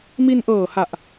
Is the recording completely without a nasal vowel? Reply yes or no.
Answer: yes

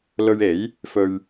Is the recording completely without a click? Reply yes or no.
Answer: yes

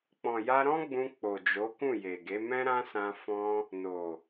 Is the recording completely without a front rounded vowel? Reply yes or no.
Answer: yes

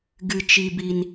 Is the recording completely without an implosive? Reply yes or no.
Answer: yes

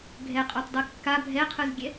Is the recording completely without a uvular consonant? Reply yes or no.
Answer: no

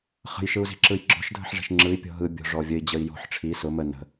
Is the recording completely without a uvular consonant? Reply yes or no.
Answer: no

